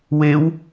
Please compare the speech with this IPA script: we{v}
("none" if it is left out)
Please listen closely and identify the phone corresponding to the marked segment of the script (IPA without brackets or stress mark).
w